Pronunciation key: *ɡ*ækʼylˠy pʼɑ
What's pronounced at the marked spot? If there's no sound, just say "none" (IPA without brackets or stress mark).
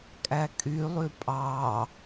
kʼ